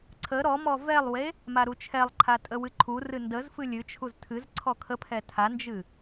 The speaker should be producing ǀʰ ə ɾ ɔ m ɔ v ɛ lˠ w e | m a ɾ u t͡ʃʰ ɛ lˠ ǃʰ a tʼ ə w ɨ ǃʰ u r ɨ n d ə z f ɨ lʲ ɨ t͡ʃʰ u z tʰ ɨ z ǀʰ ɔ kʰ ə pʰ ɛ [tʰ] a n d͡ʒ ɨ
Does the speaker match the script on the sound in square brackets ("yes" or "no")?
yes